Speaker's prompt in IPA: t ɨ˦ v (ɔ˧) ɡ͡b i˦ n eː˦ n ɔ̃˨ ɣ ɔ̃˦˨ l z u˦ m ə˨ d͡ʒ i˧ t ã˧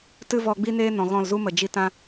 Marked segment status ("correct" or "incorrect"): correct